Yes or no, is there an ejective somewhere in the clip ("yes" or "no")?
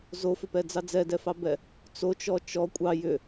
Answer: yes